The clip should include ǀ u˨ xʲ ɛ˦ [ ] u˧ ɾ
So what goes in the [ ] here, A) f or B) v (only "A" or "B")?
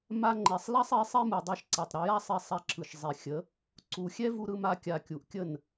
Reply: B